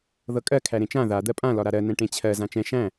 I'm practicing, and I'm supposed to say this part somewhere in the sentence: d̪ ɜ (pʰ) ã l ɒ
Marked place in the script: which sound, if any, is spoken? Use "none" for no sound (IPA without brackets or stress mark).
pʼ